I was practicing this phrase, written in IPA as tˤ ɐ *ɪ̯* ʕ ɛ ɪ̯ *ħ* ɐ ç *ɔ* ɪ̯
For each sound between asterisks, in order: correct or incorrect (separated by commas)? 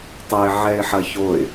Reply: correct, correct, incorrect